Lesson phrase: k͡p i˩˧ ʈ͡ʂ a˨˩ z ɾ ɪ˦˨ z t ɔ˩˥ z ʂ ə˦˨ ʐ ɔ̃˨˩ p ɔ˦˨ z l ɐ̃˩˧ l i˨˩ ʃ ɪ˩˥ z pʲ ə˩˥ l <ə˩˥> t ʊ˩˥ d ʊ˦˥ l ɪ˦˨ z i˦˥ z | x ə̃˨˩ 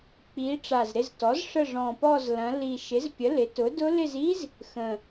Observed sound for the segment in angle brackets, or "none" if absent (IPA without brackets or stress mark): ɪ˩˥